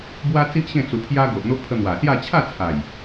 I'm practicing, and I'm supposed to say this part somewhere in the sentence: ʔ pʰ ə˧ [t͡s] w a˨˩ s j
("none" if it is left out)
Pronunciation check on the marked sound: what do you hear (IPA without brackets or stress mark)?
n̪